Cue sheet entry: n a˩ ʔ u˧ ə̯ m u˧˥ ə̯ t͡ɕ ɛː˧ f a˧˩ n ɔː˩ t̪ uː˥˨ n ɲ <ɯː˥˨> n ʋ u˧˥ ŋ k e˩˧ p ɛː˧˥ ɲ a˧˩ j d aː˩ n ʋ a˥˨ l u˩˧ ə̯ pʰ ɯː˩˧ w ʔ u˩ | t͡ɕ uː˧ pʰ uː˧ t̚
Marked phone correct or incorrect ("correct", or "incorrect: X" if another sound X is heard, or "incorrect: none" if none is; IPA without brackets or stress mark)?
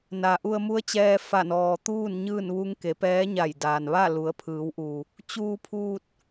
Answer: correct